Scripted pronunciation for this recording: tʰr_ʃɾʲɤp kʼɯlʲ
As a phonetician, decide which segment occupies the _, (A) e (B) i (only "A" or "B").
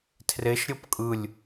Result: A